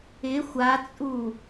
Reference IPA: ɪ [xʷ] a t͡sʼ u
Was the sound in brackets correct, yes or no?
yes